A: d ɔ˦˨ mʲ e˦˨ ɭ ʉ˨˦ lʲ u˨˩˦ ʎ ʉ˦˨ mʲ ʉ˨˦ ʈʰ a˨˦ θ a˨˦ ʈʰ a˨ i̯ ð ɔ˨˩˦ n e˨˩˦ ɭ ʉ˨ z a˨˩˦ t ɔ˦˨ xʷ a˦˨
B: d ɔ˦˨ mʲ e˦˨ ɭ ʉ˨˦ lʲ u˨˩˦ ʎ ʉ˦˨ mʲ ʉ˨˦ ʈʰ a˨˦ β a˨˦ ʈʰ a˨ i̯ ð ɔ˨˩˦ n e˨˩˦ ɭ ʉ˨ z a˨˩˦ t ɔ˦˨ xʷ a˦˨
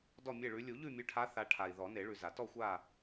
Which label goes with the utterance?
A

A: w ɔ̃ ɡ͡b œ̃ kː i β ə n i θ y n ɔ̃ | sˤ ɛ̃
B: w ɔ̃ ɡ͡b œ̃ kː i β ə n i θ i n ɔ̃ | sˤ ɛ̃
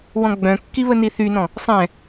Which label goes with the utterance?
A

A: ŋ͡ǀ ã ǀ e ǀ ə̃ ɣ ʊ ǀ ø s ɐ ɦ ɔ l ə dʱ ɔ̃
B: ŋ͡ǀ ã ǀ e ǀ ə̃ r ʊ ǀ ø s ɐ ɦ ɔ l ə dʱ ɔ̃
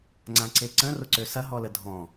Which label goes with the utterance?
B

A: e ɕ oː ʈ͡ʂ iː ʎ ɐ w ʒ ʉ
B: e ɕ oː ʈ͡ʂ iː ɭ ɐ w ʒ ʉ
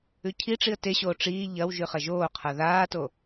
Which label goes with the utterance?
A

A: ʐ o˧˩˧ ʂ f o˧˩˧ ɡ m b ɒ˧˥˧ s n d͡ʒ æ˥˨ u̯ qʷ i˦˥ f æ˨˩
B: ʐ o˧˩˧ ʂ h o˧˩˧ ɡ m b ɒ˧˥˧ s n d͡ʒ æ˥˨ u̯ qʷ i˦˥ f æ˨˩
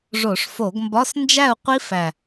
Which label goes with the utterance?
A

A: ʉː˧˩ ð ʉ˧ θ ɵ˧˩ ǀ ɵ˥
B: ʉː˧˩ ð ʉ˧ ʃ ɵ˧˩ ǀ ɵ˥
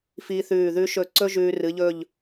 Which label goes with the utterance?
B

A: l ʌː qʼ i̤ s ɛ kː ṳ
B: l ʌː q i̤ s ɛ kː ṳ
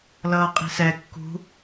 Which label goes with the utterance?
A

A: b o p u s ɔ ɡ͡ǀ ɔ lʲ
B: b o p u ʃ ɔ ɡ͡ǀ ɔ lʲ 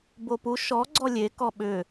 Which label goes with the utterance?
B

